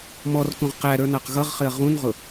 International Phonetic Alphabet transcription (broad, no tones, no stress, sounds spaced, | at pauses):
m ɔ r k ũ ʁ q æ ɾ ə˞ n ɑ q ɣ ʌ ʁ χ ɪ ɐ̯ ʁ ũ n ʁ ʊ